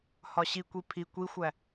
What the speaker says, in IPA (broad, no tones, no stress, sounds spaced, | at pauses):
h ɒ ɕ i kʷ i pʰ i kʷ i xʷ æ